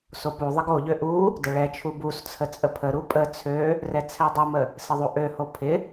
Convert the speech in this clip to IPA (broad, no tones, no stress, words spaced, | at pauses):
sopuðˤɪɡ oʎø ʔu | dəɭɛt͡ʃʰu bust͡sʰə t͡sʼəpʰəɾu pʼə t͡sʰø | rɛt͡sʰɛdˤəmə | sɪðˤuʔøho pʰɪ